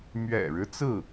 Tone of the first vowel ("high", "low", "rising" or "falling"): low